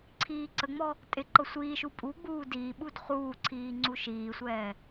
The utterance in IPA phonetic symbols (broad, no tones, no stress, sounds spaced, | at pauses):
ǀʰ iː ǀ ə ŋ͡m ɔ | tʼ ɪ ǃ ɤ sʷ iː ʃ u pʼ u ɡ͡b uː d iː ɓ u d χ uː ǀʰ iː ŋ͡ǀ u ʃ iː sʷ ɛː